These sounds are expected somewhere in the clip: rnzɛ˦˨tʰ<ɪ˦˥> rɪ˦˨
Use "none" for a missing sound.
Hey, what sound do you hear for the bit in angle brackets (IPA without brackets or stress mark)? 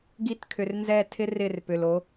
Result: ɪ˦˥